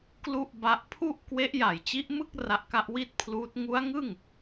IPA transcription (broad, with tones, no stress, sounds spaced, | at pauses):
k l u˥˩ ʔ b a˦˥ ʔ pʰ u˥˩ ʔ k w e˦˥ ʔ j a˨˩ j t͡ɕ i˦˥ ʔ m ɯ˥˩ k̚ r a˦˥ ʔ k a˦˥ ʔ w i˥˩ t̚ pʰ l uː˦˥ t̚ ŋ u˦˥ a̯ ŋ ɯ˥˩ ŋ